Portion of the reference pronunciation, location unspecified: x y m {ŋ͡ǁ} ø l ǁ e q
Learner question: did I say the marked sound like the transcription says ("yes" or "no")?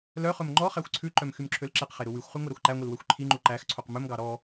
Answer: no